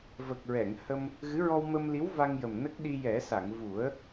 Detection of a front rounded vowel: absent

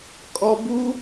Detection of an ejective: present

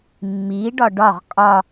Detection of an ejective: present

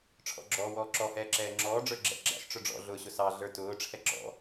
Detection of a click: present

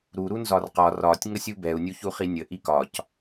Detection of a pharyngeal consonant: absent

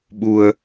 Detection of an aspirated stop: absent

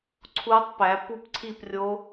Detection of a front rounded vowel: absent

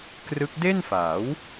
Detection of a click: absent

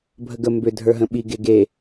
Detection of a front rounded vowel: present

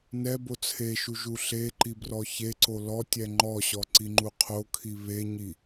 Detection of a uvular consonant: present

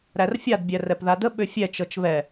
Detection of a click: absent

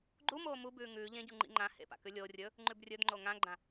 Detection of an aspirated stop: absent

